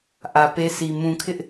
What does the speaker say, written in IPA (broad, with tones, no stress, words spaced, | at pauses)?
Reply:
ʔä˨ pe˦si˨ mũ˨kʰɪ˦ʔ